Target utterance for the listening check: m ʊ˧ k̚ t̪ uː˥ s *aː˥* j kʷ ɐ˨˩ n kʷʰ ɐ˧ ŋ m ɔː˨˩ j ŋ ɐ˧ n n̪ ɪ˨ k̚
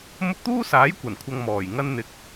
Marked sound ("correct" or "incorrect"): incorrect